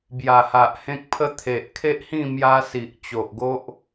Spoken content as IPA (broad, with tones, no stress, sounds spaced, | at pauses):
b j a˨˩ h a˨ ʔ h ẽ˦ k̚ pʰ ə˦ t̪ʰ e˨ ʔ kʰ e˦ ʔ h ĩ˥˧ m j a˦ s i˨ ʔ t͡ɕ o˨ ʔ ɡ o˦ ʔ